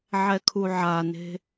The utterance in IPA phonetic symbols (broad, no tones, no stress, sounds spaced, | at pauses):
ʕ ɛ kʰ u ʕ a n e̤